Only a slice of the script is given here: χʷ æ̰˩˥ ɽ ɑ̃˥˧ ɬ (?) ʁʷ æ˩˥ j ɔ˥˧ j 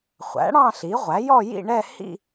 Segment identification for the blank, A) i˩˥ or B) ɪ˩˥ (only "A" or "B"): A